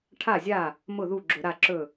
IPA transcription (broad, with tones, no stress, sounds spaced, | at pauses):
ʈʰ a˥˩ zʲ a˥˩ | m ʊ˥˩ ð u˥˩ ɡ͡ǁ ʊ˧˩˧ ɾ a˥˩ ǁ ɵ˥˩